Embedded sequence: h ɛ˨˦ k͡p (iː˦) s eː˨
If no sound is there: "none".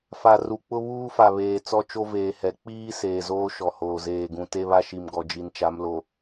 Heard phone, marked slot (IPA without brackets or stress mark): iː˦